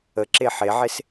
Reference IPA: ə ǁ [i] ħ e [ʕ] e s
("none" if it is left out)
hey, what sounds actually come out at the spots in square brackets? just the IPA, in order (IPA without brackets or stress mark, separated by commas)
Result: e, ʕ